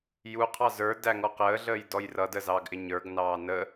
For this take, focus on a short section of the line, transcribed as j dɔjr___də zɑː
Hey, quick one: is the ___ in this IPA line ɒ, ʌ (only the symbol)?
ʌ